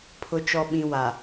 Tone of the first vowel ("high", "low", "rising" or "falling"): low